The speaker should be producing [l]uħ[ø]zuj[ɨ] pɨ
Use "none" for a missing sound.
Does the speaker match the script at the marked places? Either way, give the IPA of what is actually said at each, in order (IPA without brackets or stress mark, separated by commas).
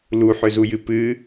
l, ø, ɨ